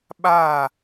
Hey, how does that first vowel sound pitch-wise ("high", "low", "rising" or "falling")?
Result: falling